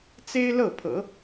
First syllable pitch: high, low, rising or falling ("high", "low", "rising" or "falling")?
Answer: high